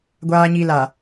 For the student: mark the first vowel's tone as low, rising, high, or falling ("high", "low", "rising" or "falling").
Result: low